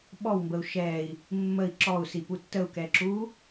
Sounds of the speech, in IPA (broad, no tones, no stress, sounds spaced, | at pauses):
ɓ ɔ w m b ə u̯ ʃ ɛː i̯ | mː ə i̯ ǁ ɔ u̯ s i p u tː ə u̯ k ɛ ǁ uː